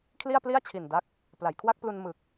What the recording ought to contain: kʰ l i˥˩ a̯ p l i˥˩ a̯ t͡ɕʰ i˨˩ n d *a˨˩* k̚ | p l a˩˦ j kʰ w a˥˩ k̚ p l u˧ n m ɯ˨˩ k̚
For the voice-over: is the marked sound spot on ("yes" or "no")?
no